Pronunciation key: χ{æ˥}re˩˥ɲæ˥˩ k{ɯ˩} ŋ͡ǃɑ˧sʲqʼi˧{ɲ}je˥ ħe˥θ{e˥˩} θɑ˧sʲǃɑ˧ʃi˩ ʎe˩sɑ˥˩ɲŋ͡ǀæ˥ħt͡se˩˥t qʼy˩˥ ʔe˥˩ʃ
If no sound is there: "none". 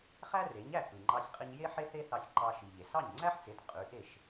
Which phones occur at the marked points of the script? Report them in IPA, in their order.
æ˥, ɯ˩, ɲ, e˥

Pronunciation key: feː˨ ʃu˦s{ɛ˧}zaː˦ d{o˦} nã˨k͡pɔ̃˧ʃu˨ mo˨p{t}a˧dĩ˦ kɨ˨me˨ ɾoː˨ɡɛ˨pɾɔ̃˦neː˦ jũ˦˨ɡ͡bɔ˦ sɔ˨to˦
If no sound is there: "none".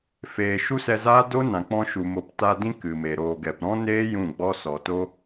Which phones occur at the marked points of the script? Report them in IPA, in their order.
ɛ˧, o˦, t

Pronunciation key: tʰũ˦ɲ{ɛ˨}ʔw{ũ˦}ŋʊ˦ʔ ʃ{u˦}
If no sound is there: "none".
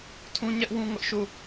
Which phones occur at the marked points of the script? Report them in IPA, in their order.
ɛ˦, ũ˦, u˦˨

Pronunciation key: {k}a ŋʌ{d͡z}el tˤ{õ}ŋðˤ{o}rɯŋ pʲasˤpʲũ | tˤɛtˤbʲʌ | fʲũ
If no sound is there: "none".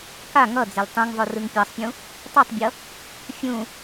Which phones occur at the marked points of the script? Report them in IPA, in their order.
k, d͡z, ũ, o

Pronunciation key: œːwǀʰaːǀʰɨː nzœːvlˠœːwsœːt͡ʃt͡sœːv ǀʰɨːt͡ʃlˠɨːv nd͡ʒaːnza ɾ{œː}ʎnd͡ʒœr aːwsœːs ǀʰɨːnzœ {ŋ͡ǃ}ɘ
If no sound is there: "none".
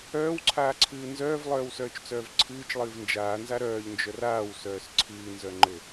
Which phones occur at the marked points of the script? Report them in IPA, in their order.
œː, ŋ͡ǃ

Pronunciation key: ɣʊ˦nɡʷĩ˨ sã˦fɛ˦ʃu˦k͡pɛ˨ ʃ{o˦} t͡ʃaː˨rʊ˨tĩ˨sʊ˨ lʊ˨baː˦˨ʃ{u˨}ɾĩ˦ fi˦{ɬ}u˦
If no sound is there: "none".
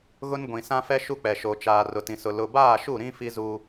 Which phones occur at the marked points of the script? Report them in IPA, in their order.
o˨, u˦˨, z

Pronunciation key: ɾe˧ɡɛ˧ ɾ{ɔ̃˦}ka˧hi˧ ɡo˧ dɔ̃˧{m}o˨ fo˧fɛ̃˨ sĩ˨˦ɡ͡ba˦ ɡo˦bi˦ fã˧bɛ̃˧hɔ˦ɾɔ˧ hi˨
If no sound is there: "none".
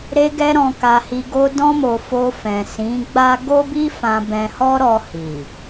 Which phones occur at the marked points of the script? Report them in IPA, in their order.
ɔ̃˧, m

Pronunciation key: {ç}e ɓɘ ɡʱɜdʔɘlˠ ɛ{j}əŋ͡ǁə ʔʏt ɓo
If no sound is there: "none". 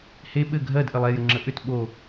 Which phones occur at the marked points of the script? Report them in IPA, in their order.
h, j

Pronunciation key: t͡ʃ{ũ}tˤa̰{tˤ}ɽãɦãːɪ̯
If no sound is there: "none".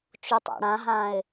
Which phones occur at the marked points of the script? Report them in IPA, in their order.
u, none

